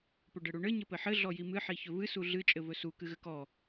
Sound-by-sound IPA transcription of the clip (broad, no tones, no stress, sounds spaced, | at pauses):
p ɵ ɖ ɘ ɽ u ɳ ɘ ɲ ɘ p ɘ ħ ɘ ɮ ɔ j i m ɨ ħ i ç ɵ v ɨ s u ɮ ɨ t͡ʃʼ ɘ v ɵ s u k ɨ ɣ ɘ k ɔ